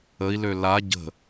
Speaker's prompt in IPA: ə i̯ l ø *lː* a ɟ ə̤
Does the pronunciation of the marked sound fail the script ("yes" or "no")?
yes